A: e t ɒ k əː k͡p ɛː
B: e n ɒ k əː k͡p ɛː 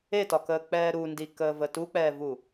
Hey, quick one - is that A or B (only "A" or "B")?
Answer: A